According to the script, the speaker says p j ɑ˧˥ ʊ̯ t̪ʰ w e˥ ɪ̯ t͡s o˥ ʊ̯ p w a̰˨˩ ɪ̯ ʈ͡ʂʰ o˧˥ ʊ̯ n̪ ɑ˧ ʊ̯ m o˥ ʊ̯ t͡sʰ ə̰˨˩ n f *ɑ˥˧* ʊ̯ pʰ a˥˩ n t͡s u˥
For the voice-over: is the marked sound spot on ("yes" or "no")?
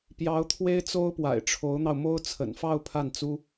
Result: yes